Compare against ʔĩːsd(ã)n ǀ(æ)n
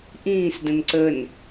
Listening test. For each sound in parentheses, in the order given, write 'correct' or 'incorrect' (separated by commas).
incorrect, incorrect